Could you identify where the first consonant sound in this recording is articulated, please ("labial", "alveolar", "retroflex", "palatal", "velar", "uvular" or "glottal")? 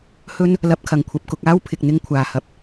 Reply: glottal